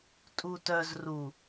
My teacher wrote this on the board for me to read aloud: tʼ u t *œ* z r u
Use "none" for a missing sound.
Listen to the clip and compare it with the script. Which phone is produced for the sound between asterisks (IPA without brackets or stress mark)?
œ